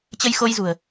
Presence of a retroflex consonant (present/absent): absent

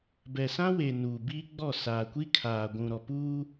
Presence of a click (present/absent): absent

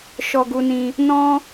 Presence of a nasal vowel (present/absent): present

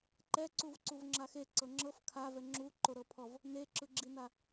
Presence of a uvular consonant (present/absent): absent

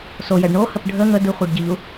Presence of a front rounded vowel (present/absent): absent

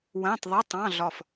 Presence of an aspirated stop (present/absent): absent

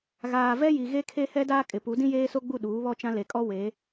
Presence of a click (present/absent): absent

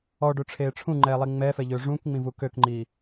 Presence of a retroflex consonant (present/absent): present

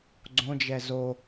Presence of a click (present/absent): present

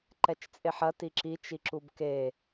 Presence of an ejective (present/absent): present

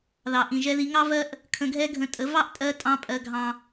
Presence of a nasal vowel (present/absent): present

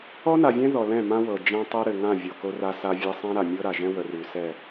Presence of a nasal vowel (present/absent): present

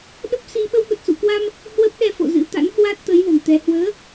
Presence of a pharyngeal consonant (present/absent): absent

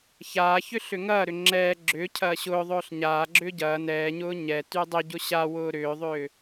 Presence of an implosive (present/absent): absent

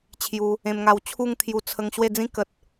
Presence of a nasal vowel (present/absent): present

